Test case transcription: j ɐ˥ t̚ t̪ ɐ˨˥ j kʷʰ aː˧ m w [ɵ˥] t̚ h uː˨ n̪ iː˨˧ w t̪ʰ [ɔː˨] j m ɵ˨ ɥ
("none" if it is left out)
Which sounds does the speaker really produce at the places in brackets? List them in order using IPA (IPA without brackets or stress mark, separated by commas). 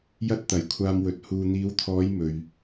ɵ˨˥, ɔː˨˧